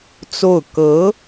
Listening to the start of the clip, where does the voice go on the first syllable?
falling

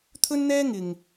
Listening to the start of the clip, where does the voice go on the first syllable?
high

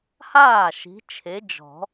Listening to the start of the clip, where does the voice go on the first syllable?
falling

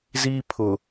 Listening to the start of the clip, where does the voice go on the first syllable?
high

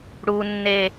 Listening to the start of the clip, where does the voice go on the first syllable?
high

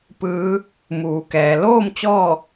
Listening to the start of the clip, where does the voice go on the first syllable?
rising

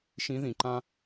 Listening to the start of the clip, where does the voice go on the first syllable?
rising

